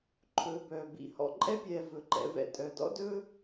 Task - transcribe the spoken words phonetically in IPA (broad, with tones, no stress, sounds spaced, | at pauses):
ǃʰ ɵː˨ b œː˩ b ḭ˨ h ɔ̰˨ ǃʼ ɛ˦ pʲ ɛː˨ v ɵ˩ ǃ ɛ̰˨ v ɛ̰˨ tʼ œ˩ d ɔ̰˦ d ɵː˦